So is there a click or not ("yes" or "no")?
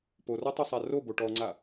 yes